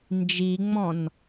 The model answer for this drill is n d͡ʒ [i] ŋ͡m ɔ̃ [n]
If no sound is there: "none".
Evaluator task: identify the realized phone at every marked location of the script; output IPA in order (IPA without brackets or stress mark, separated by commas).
i, n